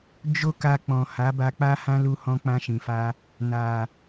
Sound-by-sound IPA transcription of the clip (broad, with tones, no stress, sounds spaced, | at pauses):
d͡ʒ o˦ k a˧ k͡p ɔ̃˨ h a˨˦ b a˧ k͡p a˦ h ã˦ l u˦ h ɔ̃˦ k͡p ã˧ ʃ ĩ˨ f a˧ | n a˨